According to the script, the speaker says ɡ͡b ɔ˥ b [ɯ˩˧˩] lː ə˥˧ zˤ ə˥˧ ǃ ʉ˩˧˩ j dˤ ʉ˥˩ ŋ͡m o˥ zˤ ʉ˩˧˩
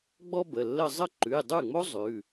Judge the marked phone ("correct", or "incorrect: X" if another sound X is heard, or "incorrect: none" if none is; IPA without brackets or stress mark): incorrect: ə˩˧˩